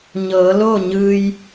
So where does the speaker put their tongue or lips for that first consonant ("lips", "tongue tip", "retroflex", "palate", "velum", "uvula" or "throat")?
palate